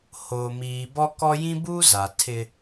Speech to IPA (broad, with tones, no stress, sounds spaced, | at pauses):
h oː˨ m iː˨ b ɔ˦ k ɔ˦ j ĩ˦ b uː˦ z a˨ tʰ ɪ˦